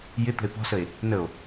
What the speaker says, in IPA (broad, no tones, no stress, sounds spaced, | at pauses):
j ɪ t̪ ə̤ e̯ p ɔ̤ s ə e̯ | n ə o̯